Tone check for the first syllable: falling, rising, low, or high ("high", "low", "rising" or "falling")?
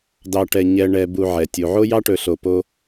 low